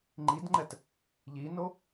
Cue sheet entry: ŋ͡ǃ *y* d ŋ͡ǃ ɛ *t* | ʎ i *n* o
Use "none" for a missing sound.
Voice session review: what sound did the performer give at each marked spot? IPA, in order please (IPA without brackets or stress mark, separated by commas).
i, t, n